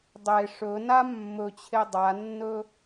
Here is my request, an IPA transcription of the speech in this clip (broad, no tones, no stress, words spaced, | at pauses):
dˤe ʂɵna mːɵt͡ɕʰe dˤanːɵ